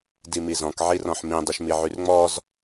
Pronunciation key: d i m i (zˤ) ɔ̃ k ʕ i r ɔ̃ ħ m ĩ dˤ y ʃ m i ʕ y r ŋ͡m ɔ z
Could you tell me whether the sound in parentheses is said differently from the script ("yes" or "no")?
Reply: yes